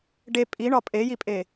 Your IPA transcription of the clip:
ɖe pʼiɳɒ pʼejipʼe

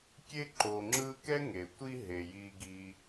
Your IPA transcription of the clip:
kʲe˥ǃo˨ ŋ͡ǁɯ˦kɛ˥ ŋe˩tʷi˦ɦe˩ ji˨ɡi˨

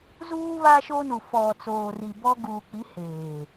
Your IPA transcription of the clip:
zuː˦βa˦ ʃo˦nu˨ fɔ˨t͡soː˨ri˨ bɔ˦ ɡuː˨k͡pi˨˦ heː˨

